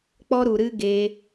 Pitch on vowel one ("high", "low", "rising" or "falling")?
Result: high